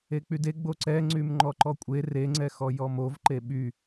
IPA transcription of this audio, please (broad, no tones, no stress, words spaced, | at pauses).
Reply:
ek͡pyde ɡ͡boǀɛ ŋ͡ǀymŋ͡ǃɔǃɔkʷʼe reŋ͡ǀɛxɔ jɔmov ǃeɓy